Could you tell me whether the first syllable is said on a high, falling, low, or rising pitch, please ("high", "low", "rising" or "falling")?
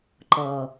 low